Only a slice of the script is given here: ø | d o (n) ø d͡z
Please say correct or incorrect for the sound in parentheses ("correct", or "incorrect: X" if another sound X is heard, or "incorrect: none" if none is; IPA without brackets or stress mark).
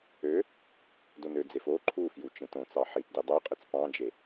correct